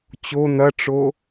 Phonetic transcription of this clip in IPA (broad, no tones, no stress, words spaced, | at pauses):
t͡ɕo n̪ɐʈ͡ʂo